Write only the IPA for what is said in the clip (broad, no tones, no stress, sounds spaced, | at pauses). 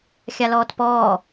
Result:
xʲ a l ɔː t p ɔː